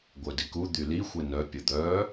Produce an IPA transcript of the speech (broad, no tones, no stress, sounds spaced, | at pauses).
ɡʷ œ d i k u d̪ y l i xʷ e n œ pʲ ə d̪ œ